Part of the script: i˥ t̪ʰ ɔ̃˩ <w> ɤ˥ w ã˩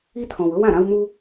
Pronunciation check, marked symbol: correct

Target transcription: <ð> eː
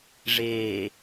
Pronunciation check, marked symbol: incorrect: ʐ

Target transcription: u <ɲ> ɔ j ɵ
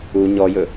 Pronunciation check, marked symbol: correct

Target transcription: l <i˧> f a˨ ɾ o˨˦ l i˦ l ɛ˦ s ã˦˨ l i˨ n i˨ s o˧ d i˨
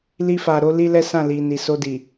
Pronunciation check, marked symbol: correct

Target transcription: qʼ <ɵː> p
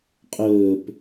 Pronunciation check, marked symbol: correct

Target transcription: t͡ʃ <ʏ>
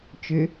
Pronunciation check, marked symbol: correct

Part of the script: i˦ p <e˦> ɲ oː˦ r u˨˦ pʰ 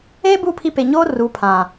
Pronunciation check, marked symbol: incorrect: e˨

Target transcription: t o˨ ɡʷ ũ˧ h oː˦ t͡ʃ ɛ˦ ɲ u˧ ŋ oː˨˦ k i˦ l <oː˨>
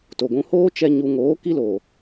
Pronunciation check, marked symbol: correct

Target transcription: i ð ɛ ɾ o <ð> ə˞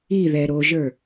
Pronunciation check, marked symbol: incorrect: ʒ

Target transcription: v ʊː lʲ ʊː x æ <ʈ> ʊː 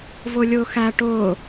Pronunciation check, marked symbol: correct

